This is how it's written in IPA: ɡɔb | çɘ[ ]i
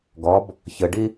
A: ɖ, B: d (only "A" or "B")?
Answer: A